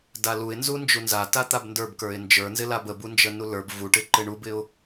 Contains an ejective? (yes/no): no